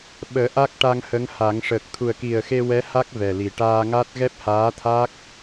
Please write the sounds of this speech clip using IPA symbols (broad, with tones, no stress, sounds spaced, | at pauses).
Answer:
ɓ əː˨˩˦ ʔ a˦˥ k̚ ʈ a˧ ŋ h ə˧˥ ŋ h a˨˩˦ ŋ ʂ əː˨˩ k̚ t̪ʰ u˨˩ ə̯ k i˨˩ ə̯ x e˧ w ɛ˧˥ h a˦˥ k̚ v ɛ˨˩ l i˨˩ ʈ aː˧ ŋ a˦˥ t̚ ɣ ɛ˦˥ p̚ h aː˧˥ t̪ʰ a˦˥ k̚